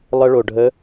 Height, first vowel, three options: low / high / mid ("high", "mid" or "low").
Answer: mid